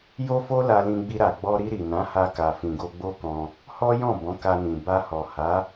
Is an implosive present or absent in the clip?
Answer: absent